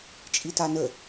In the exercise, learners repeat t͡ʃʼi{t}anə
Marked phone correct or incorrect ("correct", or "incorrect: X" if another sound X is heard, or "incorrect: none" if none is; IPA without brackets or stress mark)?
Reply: correct